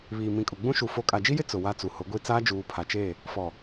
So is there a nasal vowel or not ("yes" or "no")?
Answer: yes